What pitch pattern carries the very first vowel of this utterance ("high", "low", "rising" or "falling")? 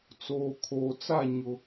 low